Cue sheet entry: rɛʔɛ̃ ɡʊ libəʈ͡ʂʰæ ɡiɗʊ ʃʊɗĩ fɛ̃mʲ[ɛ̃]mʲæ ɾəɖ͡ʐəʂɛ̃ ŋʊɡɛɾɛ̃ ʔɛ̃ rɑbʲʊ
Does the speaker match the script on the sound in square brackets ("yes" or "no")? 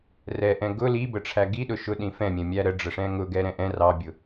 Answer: yes